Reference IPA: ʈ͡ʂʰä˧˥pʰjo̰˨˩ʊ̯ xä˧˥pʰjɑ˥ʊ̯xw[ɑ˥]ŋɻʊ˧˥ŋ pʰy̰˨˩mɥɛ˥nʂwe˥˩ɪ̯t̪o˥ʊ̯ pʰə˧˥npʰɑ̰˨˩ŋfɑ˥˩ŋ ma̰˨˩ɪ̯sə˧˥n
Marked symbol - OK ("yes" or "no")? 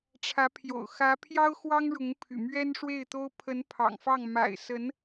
yes